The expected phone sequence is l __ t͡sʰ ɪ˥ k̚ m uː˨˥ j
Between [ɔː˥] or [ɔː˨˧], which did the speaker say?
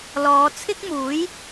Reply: ɔː˨˧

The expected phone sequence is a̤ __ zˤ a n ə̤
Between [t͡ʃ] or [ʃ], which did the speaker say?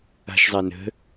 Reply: ʃ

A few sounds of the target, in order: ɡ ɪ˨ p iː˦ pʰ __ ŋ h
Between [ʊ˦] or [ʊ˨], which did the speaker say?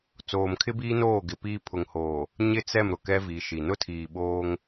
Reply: ʊ˨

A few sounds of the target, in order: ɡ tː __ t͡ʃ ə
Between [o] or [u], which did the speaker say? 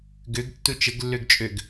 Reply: u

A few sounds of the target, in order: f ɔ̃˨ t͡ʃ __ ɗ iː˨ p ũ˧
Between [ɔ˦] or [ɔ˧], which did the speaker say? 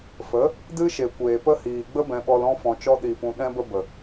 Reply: ɔ˧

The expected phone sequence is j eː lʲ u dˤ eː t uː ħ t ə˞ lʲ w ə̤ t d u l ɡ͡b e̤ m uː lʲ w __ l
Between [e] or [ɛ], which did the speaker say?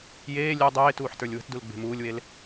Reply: e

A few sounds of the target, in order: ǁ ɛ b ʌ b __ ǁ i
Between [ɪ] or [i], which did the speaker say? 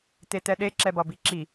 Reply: i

